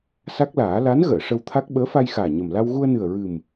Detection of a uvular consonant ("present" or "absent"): absent